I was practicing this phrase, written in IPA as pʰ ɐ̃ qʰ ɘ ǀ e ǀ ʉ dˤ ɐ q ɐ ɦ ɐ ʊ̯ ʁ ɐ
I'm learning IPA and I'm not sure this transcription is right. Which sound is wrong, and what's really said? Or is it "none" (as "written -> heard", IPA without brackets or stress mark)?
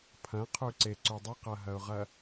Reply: ɘ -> ʉ